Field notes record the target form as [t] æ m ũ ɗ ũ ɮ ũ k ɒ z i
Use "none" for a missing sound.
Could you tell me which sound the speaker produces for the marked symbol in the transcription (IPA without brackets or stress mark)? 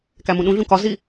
k